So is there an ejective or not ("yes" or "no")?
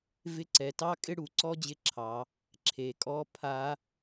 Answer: yes